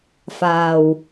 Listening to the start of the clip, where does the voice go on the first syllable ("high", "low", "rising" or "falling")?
low